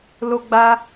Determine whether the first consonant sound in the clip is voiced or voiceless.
voiced